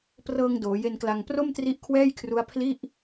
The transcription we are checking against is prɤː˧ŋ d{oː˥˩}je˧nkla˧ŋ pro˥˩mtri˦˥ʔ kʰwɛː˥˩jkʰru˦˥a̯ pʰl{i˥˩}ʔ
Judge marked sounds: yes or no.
no, yes

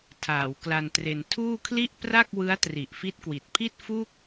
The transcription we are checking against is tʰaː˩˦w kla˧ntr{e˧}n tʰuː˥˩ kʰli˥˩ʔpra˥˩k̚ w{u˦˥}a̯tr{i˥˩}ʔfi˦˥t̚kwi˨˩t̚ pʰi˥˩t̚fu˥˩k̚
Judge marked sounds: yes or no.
yes, no, no

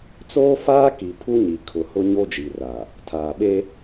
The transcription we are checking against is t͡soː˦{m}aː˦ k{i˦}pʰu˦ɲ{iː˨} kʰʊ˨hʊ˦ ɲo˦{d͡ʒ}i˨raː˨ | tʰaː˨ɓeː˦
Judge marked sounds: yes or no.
no, no, no, yes

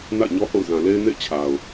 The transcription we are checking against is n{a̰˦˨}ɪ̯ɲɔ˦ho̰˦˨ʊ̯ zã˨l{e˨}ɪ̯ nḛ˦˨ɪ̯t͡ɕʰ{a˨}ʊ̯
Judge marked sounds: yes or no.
yes, no, yes

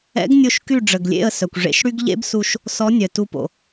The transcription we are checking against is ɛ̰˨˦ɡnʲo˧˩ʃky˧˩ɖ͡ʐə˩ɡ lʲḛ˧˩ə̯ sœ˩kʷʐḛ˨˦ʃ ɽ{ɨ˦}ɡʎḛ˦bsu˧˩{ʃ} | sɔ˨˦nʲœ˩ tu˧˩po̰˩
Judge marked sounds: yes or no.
no, yes

